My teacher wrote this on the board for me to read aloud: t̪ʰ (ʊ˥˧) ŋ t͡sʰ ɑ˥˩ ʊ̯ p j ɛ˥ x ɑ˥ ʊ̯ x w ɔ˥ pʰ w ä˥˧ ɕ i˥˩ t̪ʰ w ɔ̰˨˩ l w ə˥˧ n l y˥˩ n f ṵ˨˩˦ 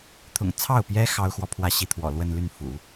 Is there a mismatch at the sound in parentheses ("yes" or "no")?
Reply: yes